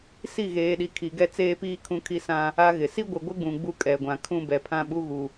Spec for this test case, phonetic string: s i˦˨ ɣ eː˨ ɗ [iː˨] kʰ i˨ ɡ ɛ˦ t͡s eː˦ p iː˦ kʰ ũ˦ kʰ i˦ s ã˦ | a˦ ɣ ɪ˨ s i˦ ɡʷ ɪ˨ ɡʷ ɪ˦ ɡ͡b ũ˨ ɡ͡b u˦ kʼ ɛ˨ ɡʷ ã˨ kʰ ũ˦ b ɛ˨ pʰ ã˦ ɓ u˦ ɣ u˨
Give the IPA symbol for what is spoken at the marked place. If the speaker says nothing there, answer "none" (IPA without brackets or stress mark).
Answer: i˨